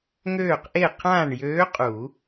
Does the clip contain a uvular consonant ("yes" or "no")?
yes